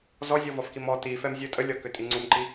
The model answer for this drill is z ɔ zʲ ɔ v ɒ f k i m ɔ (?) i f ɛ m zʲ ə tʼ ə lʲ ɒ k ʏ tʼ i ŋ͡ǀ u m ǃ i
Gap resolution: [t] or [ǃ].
t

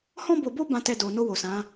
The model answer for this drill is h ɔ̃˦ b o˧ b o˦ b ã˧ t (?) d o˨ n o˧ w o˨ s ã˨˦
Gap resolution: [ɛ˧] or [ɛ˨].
ɛ˧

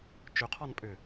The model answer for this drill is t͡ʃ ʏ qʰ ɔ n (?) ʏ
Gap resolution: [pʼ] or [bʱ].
pʼ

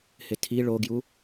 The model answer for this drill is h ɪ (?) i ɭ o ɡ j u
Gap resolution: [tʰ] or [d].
tʰ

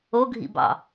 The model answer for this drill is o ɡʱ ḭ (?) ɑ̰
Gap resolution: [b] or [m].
b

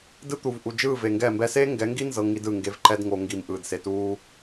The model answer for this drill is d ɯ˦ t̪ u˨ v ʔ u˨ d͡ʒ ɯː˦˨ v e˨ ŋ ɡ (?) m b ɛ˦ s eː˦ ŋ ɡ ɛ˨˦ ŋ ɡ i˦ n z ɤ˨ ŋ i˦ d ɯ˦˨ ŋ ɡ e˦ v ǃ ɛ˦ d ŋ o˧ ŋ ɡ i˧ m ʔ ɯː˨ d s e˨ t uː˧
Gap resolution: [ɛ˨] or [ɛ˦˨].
ɛ˦˨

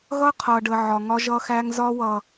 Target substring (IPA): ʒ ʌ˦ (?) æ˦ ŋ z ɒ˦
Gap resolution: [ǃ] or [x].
x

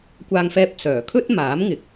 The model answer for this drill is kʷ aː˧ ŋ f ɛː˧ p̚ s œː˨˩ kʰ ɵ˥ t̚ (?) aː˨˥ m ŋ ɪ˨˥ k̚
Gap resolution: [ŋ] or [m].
m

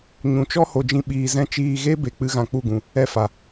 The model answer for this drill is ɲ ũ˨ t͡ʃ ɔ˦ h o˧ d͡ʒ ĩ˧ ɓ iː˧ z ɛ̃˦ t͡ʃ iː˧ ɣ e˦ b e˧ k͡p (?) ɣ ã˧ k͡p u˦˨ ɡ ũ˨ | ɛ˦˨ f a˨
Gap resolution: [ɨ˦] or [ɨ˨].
ɨ˦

